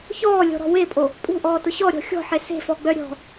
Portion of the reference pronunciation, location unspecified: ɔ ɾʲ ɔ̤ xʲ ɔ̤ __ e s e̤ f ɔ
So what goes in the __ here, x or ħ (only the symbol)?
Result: ħ